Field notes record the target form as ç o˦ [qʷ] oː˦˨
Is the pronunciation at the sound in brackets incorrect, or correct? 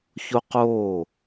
incorrect